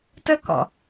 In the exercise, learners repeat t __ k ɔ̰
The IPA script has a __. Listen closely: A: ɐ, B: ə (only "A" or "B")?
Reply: B